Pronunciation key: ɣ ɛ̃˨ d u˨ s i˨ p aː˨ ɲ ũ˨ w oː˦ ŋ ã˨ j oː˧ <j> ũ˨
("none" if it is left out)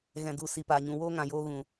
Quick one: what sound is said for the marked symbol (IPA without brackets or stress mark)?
ɣ